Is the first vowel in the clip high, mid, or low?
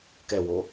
mid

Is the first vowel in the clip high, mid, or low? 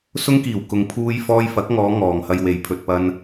high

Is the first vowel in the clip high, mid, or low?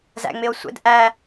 low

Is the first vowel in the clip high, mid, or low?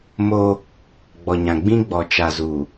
mid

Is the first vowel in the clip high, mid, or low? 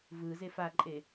high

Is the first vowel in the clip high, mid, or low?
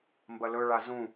low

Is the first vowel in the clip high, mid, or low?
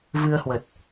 high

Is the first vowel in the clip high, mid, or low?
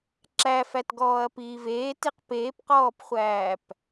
low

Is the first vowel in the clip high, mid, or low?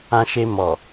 low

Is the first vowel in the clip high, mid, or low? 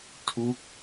high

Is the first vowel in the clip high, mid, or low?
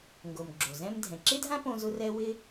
mid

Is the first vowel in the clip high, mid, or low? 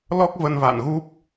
mid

